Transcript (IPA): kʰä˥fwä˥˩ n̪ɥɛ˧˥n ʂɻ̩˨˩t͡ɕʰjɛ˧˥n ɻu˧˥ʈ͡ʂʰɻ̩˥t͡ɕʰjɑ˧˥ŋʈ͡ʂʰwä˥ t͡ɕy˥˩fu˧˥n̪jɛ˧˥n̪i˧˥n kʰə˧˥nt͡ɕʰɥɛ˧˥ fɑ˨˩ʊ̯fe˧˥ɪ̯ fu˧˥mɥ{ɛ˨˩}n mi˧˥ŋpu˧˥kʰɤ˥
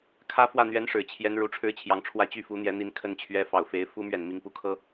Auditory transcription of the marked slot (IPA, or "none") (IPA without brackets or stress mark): ɛ˨˩